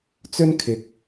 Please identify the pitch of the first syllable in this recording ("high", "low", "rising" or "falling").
high